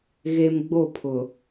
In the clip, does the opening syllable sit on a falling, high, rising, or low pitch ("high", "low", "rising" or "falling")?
high